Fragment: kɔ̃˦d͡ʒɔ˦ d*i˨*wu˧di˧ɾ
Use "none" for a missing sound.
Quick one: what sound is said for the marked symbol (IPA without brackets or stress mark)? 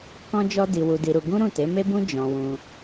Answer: i˧